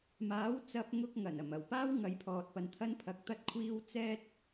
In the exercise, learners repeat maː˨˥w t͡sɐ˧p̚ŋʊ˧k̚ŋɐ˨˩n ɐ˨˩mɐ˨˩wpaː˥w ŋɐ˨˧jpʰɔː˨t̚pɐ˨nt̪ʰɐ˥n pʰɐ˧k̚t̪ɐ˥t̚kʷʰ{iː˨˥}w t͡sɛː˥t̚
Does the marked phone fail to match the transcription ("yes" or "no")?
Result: yes